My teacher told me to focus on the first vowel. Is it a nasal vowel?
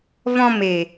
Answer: yes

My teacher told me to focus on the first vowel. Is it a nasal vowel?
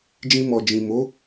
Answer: yes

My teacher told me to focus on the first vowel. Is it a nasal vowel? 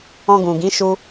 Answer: yes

